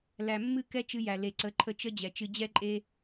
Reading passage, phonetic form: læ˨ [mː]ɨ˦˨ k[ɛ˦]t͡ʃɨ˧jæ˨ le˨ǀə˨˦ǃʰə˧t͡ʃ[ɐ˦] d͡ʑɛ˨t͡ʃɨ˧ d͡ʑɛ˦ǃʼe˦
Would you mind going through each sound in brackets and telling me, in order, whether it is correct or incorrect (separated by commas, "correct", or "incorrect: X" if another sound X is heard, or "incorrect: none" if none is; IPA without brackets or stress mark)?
correct, correct, incorrect: ə˦